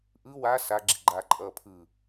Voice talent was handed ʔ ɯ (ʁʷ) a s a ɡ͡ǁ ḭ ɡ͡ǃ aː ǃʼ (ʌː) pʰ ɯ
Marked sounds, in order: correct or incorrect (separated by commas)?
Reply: incorrect, correct